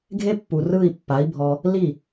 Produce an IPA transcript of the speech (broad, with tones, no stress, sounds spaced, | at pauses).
ɡʱ e˦ pː u˨ r ɯ˦˨ i̯ pː a˨˦ i̯ bʱ ɔ˧ | l i˦˨